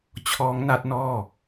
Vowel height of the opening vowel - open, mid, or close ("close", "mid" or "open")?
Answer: mid